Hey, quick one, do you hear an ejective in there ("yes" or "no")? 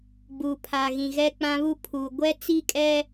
yes